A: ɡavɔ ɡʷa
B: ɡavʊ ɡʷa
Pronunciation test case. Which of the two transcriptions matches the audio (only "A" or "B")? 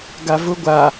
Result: B